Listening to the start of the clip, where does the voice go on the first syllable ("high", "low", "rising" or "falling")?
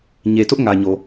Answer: low